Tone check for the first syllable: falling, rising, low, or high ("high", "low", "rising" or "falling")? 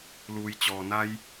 low